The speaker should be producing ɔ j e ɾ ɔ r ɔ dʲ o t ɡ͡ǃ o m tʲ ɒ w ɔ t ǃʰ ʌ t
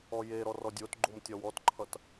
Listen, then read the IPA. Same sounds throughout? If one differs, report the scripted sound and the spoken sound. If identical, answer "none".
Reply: none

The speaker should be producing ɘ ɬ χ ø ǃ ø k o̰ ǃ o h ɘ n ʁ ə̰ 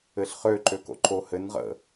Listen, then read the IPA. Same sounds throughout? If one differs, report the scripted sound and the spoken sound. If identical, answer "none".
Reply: none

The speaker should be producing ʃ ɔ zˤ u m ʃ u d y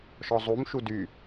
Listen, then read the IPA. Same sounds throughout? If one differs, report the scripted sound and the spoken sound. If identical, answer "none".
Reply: none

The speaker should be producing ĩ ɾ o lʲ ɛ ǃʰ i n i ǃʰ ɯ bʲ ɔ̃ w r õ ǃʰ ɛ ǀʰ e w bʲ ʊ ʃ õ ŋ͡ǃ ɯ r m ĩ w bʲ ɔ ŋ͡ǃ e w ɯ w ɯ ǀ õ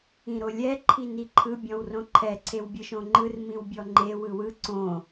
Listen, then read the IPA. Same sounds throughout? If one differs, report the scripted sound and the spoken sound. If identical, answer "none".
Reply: ʊ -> ɯ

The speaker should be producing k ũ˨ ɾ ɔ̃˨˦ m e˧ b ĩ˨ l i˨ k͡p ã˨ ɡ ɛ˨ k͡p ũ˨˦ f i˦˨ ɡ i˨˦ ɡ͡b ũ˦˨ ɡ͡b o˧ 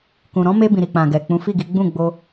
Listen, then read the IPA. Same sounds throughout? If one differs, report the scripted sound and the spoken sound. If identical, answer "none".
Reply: l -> ɾ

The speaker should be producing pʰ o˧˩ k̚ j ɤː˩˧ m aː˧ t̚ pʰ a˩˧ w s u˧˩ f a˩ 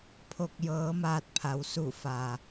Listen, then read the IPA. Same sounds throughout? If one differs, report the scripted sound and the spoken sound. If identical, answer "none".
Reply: none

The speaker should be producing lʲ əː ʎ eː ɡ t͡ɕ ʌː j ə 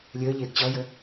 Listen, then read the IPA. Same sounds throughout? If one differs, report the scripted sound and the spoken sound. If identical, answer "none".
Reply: none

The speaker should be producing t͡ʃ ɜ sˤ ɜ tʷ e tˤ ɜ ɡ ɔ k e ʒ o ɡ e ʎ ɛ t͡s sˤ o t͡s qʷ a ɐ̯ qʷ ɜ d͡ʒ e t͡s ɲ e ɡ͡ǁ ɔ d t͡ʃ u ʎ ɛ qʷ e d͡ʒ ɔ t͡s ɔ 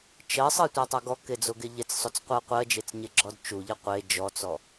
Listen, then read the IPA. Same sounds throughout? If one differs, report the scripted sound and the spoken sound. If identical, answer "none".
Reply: ʒ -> d͡z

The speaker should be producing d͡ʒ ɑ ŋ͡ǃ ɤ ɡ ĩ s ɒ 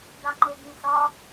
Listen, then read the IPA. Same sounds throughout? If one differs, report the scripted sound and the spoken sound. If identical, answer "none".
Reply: d͡ʒ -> d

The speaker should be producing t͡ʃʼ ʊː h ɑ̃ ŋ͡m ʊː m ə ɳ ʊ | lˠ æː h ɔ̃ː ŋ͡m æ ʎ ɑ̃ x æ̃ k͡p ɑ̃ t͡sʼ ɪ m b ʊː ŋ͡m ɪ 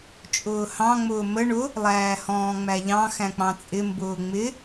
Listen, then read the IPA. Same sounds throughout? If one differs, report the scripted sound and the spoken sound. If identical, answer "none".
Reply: none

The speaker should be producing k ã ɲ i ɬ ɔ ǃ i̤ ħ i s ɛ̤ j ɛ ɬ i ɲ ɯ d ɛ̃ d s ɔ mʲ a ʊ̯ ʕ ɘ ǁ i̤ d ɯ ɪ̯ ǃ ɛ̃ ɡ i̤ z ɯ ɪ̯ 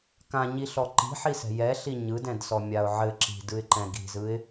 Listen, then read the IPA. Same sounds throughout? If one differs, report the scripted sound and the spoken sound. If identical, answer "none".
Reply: none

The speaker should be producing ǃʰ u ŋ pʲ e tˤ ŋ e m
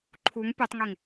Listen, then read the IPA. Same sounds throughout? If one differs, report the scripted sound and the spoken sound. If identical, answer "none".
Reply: m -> ŋ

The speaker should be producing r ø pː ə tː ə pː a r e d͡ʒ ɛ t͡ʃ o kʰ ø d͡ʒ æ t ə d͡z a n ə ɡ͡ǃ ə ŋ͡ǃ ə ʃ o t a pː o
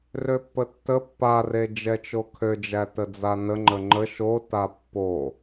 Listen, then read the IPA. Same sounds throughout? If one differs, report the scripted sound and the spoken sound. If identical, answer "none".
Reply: ɡ͡ǃ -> ŋ͡ǃ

